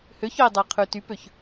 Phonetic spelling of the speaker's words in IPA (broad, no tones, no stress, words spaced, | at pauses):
høçœi̯dˤæqʰʉ typøç